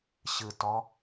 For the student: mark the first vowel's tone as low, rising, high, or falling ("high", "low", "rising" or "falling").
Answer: low